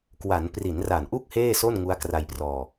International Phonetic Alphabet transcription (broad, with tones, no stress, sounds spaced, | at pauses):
k w a˩˦ n p r i˩˦ n r a˨˩ n ʔ u˥˩ k̚ h eː˥˩ s o˥˩ n ŋ u˦˥ a̯ k r a˧ j p r ɔː˧